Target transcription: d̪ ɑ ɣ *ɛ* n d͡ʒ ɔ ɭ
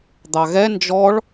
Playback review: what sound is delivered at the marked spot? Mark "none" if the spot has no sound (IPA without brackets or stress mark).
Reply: ɛ